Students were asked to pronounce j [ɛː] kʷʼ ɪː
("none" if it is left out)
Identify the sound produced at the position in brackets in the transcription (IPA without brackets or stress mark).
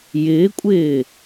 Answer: ɪː